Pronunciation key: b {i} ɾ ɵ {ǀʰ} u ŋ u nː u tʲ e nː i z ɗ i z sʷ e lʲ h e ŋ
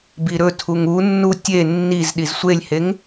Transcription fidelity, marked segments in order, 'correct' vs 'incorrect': correct, incorrect

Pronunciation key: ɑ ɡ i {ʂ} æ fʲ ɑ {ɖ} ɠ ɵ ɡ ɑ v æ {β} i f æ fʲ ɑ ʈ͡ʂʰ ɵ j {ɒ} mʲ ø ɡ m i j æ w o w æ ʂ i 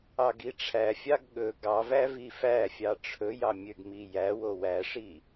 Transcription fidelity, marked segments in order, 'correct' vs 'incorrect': incorrect, incorrect, incorrect, incorrect

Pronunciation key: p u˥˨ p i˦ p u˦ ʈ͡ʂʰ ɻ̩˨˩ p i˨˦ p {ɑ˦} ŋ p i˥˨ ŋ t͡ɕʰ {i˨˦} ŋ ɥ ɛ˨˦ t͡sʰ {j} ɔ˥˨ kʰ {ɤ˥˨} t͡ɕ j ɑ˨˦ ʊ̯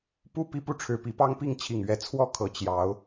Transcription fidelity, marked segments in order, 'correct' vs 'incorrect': correct, incorrect, incorrect, incorrect

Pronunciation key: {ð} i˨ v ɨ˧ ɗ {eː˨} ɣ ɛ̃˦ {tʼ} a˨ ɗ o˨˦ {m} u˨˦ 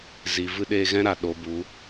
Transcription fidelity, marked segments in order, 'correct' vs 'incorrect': incorrect, incorrect, incorrect, incorrect

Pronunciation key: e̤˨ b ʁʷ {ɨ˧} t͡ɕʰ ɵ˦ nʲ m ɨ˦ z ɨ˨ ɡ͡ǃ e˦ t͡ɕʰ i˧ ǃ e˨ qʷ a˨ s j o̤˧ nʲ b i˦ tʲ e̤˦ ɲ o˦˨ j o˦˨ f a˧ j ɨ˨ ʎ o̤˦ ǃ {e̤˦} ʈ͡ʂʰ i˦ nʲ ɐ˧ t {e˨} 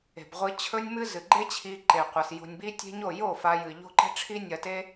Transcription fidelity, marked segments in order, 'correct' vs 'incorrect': correct, correct, incorrect

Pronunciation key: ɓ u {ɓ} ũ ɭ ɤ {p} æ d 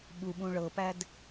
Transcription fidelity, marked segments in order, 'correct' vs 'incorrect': correct, correct

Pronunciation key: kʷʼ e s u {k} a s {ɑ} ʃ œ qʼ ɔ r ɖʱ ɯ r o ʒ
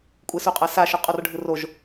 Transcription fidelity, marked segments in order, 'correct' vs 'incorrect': incorrect, incorrect

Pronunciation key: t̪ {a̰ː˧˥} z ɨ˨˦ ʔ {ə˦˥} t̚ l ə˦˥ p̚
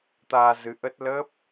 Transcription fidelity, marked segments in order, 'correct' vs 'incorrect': incorrect, correct

